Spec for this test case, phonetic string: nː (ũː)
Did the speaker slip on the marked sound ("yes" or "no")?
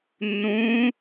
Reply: no